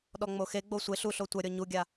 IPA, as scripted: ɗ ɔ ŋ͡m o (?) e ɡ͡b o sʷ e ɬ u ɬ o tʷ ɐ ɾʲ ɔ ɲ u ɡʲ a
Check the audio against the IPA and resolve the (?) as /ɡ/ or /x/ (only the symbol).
x